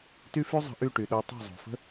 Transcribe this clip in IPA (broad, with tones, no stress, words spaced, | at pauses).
ty˦fy˦zˤə̤˧ʔy˦˨ ʈy˨ɗo˧ tˤo̤˦˨zˤo̤˨fə̤˦